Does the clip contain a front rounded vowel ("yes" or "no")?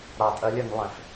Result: yes